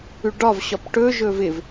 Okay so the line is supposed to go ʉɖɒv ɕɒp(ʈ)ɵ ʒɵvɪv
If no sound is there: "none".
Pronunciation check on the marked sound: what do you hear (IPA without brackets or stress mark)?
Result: ʈ